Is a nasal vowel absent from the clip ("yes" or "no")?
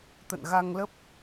yes